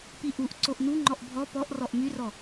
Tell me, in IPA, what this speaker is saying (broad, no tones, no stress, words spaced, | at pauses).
piʔuʔ ǀoʔnuŋ͡ǃɔʔ bʱɔ pɔʔ rɔʔmyrɔ